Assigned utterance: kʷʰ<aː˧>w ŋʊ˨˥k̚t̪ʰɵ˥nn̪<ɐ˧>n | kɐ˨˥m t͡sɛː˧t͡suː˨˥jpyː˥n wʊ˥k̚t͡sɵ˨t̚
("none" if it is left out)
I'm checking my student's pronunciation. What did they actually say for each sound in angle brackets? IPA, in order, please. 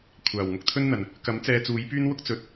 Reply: aː˨˩, ɐ˨˩

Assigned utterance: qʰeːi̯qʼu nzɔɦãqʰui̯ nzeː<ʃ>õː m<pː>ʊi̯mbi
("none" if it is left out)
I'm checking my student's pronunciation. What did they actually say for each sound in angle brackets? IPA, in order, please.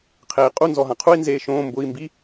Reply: ʃ, b

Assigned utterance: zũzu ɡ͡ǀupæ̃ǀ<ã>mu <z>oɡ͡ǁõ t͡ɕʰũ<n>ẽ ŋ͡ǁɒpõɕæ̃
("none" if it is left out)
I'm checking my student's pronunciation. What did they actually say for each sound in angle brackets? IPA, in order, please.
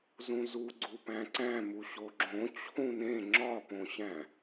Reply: æ̃, ɕ, n

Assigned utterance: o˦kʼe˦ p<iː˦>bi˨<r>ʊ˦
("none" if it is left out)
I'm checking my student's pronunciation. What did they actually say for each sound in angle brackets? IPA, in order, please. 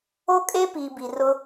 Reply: iː˨, r

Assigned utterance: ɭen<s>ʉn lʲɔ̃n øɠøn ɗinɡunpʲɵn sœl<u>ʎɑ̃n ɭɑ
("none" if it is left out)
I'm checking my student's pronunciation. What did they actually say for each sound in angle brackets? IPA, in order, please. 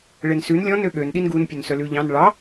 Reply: s, ʉ

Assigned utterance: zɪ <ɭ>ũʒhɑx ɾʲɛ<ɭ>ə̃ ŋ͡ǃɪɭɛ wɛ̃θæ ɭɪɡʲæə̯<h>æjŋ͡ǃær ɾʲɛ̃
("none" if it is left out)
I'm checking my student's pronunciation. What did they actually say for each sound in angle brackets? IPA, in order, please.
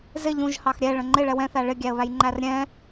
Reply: ʎ, ɭ, β

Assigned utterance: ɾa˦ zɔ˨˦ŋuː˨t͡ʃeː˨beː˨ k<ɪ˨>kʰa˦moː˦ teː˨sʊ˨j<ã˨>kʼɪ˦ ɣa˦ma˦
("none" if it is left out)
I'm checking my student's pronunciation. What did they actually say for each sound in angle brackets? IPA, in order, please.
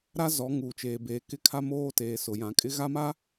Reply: ɪ˦, ã˨

